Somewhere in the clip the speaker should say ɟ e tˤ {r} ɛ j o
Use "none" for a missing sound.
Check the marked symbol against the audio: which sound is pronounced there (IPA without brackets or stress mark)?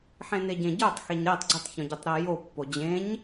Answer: ɾ